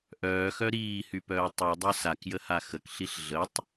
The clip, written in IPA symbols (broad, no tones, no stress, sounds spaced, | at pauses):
ʔ œː x œ ɾ iː h y p œː tˤ u dˤ œ s a k j ə h a x ə k ɬ i ɬ ɮ ə tˤ